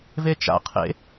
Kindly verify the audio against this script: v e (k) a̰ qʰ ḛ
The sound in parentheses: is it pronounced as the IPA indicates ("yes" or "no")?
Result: no